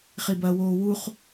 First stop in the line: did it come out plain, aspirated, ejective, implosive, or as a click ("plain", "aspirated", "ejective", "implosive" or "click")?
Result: plain